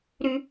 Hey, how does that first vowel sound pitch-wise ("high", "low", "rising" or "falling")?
high